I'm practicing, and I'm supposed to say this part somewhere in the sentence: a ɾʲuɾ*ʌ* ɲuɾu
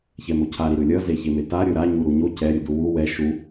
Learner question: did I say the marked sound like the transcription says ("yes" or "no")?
no